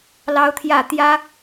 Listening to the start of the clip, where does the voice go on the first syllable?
high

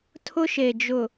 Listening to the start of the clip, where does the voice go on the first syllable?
high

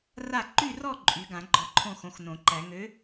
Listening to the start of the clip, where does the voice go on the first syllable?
falling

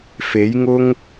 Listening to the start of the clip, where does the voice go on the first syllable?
rising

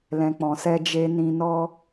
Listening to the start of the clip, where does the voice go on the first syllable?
low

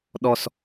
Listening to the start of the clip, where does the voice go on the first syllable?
low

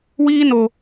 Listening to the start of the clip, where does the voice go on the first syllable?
high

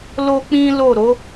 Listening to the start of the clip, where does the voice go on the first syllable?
high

